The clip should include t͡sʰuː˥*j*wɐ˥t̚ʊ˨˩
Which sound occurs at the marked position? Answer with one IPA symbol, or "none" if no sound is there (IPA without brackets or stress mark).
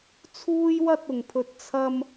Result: j